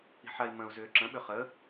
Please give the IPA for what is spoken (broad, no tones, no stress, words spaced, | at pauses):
i̤ħai̯mə̃u̯ zʏːǁə̃ ɓʏχə